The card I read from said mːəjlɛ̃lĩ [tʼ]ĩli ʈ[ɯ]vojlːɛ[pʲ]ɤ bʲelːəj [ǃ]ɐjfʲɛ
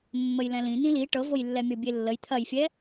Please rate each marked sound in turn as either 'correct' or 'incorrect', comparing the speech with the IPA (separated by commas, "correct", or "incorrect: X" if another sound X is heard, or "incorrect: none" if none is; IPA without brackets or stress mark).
incorrect: n̪, incorrect: ɤ, incorrect: mʲ, incorrect: t̪ʰ